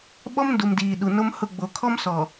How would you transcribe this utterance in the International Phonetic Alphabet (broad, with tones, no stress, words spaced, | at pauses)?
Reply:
ɓɔ˦mndu˨mdiː˨ ɗu˨no˦mhʊ˦˨ ɡ͡bo˨kʰɔ˦m sɔ˨